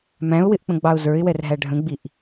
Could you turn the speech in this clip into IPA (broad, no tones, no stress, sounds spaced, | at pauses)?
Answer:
m æ̃ ʊ̯ w ɪ ʔ k͡p ə̃ ɡ͡b ɑ ʊ̯ z ə˞ ɪ̯ w ɛ r ɦ æ ɖʱ ə̃ ɡ͡b i ʔ